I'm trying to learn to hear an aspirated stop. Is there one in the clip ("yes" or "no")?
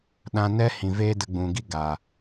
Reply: no